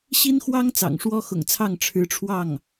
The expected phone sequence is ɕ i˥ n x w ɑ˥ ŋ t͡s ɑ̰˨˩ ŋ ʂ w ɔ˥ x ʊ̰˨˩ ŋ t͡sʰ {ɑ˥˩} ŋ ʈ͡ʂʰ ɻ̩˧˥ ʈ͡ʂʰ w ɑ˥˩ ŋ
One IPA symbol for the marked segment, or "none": ɑ˥˩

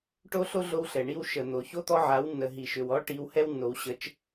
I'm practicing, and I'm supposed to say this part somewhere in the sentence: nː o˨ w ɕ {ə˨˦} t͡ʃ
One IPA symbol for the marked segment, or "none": ə˨˦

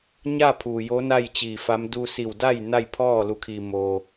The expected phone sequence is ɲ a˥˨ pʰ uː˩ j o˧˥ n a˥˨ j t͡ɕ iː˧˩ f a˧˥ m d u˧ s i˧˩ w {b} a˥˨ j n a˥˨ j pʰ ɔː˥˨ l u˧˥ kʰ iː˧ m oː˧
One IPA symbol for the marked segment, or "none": d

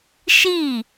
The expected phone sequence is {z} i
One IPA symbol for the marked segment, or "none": ʃ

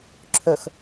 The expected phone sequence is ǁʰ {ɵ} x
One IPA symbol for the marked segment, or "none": ɵ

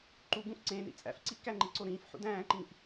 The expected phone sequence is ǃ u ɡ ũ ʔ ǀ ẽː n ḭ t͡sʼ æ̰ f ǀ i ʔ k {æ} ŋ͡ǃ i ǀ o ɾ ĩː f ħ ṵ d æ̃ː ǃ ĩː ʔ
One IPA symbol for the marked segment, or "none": æ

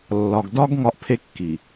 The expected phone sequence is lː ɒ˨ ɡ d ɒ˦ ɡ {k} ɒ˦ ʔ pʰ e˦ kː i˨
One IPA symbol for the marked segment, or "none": ŋ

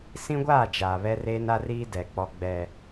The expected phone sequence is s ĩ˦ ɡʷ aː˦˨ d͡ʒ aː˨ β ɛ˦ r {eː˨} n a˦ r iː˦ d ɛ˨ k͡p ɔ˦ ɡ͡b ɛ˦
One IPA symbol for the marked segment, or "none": eː˦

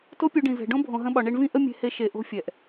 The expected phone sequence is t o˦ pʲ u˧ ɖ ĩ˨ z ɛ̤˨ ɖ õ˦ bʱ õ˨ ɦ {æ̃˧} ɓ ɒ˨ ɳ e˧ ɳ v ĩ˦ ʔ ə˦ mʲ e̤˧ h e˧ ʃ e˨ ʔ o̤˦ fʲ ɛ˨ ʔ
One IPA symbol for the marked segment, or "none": ə̃˧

